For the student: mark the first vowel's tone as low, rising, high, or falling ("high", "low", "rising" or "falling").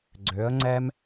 rising